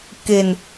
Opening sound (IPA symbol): k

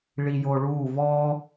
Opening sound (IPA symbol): ɭ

